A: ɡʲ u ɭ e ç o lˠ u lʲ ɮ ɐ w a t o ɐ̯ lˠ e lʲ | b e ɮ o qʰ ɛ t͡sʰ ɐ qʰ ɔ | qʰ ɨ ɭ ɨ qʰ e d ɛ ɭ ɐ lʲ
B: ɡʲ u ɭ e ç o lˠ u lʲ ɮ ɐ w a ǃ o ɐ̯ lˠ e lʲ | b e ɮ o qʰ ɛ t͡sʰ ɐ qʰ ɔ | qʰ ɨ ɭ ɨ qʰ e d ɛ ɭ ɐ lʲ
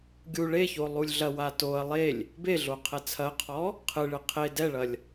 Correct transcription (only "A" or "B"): A